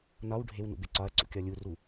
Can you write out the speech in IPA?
n ɒ w ɖʱ e w n ṵ b e ǀ ɒ ɐ̯ ǀ ṵ kʲ ɒ lʲ u r u

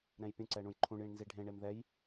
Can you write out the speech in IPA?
ɾ ɛ̃ j pʲ ũ ǀ ɛ ɳ ũ j ǃʰ ũ ɳ j ĩ ɳ n z i ɖʱ ẽ ɳ e m ð ɛ j

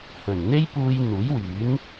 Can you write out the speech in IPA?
h ɵ˨˩ n n̪ e˥ j p uː˧ j n̪ uː˨˥ j w yː˨˥ n

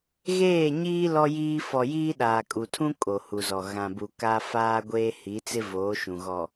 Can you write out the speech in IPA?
ɣ eː˦˨ ɲ iː˦ l ɔ˦ j iː˦ f ɔ˨ j iː˦ ɗ aː˨ kʼ u˨ tʰ ũ˦ kʼ o˨ h u˨ z ɔ˨ ɣ ã˨ b u˨ k a˦ f aː˦ ɡʷ eː˦ h i˨˦ t͡s ɪ˦ v oː˨˦ ʃ ũ˨ ɣ ɔ˨

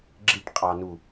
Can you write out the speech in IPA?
ɡ͡ǁ i ʈ qʼ ɑ n u

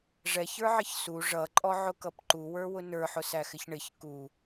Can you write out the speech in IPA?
ʐ ɛ ç ə˞ ʕ ɪ ç s u ʐ ʌ ǃʼ ɔ ʕ ʊ k ʌ p ǃ u w ə˞ w ʊ n ə˞ ħ ʊ s æ x ɪ ç ɳ ɪ ç k u

